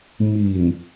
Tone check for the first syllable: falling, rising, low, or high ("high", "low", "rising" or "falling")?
low